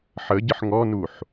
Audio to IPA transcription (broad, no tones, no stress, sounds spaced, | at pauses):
ħ ə ɟ ə ħ ŋ ɔ n u ħ